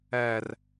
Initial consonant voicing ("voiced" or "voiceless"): voiced